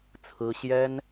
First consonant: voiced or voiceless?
voiceless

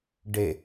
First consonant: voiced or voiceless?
voiced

